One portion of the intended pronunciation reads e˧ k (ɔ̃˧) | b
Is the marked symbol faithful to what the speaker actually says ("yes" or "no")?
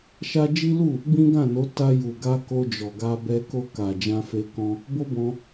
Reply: yes